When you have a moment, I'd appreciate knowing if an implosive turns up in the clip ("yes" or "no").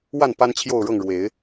no